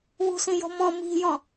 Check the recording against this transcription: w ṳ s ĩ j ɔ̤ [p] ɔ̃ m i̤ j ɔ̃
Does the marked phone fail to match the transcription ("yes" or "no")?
yes